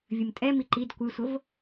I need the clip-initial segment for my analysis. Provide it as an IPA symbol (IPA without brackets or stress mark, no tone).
vʲ